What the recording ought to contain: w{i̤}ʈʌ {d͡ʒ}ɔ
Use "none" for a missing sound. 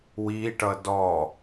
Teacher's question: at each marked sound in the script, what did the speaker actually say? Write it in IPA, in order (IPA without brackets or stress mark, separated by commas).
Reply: i, d